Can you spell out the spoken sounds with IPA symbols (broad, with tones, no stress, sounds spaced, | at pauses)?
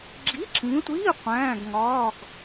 ɡ͡ǁ i˧˥˧ ǁ ĩ˨˦ tʷ iː˧˥˧ qʷ æ̃ː˧˥˧ ɡ ŋ ɒː˧˥˧ ɡ